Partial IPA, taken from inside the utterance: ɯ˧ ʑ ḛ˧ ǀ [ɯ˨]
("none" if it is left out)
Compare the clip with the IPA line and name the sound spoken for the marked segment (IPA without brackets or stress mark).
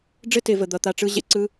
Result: ɯ˦